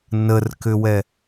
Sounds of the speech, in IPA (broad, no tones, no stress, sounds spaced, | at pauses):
n ə r k ʏ w ɛ